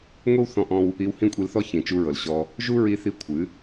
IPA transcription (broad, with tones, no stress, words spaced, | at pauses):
ŋʷi˦wθɔ̃˧ʔɔ̃˧w | i˧whĩ˦kʷʼi˧lθɔ˦ çĩ˨t͡ʃu˧ɹɤ˨l ɕɔ˧ | ʒu˦ɹi˧θi˧ kʷʰɨ˨˦